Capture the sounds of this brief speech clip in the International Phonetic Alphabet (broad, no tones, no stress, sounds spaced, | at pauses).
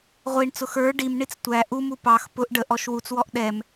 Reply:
ʁʷ i ɳ t͡s ʊ x ə˞ ɖ i m ɳ i t͡s tʷ æ ʔ u m u p ɑ x p ʊ ʔ ɖ ə ʔ ɔ ʃ w u t͡s w ɔ ʔ ɗ ɛ m